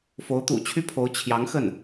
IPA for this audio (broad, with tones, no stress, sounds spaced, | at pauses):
f o˧˥ ʊ̯ t̪ ṵ˨˩ t͡ɕʰ y˥ pʰ o˧˥ ʊ̯ t͡ɕʰ j ɑ˧˥ ŋ x ə˥˩ n